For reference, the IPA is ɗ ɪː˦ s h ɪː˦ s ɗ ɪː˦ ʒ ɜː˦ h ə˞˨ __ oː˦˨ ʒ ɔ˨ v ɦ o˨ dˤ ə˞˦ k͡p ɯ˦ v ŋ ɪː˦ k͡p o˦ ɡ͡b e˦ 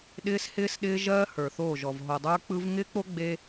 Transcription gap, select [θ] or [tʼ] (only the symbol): θ